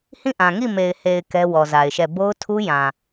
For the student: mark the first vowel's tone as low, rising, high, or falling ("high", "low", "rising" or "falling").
falling